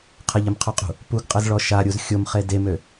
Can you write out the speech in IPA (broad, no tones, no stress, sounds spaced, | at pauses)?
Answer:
qʰ ə ʎ ɘ m qʰ o qʼ ṳ | p u ɡ qʼ ə z ɭ ɔ ʃ a ɾʲ u z xʲ o m χ e d e m ø